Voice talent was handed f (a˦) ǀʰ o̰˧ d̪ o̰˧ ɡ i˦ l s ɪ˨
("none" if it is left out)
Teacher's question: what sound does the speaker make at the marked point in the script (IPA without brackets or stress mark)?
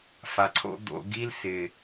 a˨